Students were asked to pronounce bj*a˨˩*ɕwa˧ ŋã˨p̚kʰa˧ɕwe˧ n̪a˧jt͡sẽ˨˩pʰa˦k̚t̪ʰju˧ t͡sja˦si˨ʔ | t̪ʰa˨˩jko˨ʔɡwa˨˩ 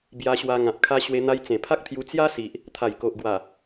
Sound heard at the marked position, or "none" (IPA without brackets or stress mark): a˧